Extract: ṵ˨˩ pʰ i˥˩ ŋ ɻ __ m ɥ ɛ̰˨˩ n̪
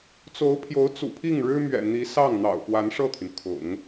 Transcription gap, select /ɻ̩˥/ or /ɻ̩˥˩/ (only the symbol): ɻ̩˥